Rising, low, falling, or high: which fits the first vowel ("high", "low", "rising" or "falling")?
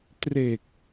low